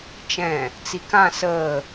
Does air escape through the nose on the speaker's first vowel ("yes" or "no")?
yes